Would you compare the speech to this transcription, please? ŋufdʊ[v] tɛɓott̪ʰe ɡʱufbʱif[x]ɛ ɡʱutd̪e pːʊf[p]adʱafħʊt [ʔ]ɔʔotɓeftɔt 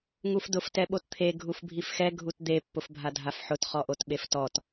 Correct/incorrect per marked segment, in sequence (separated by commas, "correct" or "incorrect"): incorrect, correct, incorrect, incorrect